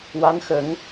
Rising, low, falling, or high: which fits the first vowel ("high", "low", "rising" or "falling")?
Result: rising